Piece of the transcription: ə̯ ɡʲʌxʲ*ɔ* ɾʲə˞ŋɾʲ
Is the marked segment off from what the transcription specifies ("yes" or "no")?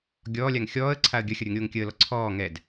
yes